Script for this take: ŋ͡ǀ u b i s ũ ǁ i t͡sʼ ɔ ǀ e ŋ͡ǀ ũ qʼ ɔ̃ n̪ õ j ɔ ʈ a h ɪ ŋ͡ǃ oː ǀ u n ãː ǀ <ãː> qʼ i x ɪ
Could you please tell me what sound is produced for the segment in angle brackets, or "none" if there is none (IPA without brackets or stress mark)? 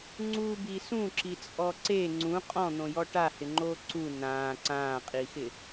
ãː